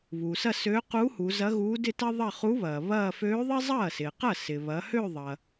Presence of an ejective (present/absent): absent